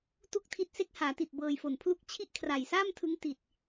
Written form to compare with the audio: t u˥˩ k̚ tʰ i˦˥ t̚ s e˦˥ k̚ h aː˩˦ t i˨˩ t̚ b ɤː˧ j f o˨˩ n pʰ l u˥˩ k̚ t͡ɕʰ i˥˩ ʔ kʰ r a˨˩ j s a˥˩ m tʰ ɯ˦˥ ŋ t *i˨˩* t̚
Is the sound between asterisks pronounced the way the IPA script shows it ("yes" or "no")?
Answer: yes